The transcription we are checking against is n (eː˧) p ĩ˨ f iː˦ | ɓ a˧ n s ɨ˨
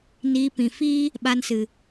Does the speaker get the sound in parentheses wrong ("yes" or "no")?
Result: yes